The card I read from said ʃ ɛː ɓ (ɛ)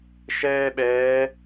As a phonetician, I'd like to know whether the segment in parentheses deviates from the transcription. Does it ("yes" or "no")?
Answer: yes